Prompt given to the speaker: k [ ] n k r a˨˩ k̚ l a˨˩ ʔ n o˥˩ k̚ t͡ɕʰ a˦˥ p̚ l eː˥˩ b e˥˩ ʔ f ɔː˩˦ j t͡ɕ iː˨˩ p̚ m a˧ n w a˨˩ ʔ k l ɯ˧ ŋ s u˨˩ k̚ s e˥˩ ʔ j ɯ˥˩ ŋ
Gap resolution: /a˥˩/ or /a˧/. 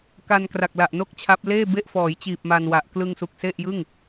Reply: a˧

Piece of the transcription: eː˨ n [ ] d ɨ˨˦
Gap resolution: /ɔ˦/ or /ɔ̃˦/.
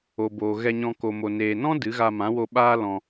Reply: ɔ̃˦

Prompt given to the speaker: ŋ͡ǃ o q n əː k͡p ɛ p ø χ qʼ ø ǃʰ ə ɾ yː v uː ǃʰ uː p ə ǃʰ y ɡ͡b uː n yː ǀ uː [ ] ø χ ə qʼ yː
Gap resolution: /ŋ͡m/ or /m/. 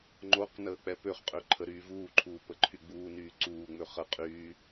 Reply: ŋ͡m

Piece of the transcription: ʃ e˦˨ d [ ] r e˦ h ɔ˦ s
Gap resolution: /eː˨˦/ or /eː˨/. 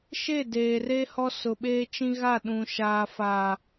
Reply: eː˨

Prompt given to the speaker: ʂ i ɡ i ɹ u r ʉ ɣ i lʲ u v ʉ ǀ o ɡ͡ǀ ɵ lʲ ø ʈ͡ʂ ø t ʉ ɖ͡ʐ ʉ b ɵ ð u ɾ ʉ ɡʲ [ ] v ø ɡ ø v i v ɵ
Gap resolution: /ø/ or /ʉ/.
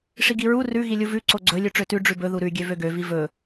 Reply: ø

